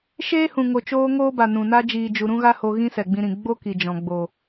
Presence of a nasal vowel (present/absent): present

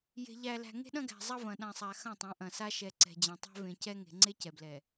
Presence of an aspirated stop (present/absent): absent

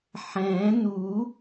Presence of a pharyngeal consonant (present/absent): present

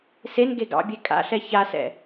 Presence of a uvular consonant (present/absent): absent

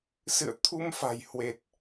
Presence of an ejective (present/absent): absent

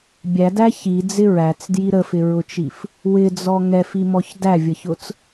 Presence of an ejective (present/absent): absent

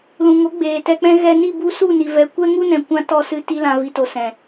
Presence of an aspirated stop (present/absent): absent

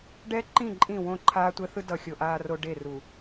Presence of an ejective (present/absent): present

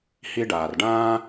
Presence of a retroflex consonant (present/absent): present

